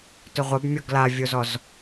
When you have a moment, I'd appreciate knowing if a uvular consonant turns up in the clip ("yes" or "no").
yes